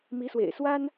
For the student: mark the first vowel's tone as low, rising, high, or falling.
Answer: rising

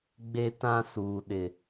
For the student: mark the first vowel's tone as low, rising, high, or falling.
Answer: high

